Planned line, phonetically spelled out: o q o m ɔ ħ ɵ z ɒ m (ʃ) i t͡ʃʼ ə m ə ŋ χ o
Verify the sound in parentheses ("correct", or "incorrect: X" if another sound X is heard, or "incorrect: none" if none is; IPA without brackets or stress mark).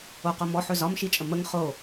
correct